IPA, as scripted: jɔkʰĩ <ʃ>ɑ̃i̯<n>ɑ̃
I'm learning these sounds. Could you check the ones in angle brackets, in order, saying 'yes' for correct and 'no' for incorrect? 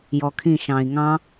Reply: yes, no

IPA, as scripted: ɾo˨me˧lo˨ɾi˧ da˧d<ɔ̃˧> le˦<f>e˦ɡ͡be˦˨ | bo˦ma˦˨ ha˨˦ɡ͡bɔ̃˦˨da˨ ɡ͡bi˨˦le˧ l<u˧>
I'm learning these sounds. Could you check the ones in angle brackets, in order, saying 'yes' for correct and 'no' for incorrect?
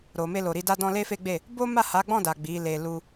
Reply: yes, yes, yes

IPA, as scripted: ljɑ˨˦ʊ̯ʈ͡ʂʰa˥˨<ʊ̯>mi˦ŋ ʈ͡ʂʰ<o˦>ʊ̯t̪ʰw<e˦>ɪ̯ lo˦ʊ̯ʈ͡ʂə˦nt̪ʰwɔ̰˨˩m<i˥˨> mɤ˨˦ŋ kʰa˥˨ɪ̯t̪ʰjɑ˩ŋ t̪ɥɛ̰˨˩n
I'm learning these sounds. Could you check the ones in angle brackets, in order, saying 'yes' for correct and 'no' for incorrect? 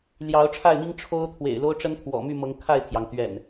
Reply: no, yes, no, no

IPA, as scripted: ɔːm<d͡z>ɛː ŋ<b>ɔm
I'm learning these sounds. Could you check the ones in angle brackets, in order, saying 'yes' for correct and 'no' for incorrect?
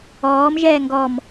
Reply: no, no

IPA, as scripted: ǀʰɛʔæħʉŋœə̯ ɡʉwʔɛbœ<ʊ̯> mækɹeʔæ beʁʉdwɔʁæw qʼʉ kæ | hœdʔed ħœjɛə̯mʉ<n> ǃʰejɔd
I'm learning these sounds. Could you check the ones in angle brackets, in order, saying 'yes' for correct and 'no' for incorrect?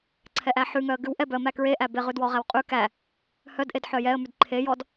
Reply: no, no

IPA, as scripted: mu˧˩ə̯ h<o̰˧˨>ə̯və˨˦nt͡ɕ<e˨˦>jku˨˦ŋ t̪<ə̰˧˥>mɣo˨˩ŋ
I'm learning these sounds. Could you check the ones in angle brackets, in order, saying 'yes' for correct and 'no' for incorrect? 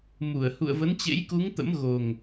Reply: no, no, yes

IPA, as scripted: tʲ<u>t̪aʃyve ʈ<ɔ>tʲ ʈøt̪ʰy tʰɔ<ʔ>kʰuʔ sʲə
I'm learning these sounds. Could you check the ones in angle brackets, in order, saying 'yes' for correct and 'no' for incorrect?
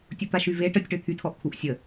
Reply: yes, no, yes

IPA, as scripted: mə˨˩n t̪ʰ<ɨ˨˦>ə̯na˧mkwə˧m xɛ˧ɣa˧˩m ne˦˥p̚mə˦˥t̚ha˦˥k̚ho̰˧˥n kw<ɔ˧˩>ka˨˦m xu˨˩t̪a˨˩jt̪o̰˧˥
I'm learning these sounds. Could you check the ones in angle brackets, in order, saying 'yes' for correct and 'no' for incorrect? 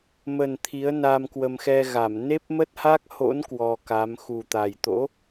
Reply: no, no

